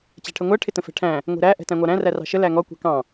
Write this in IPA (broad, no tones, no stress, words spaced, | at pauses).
t͡ɕæ̤ʈʰəŋʷæ ʈʰɪtə̃fɛ̤ʈʰæ̃ | ŋʷɛ̤ɾæ ʔɛ̤tæ̃ŋʷɑɾæ̃ rærɑ̤ʃə læŋɔ kʷɛ̤kɑ̃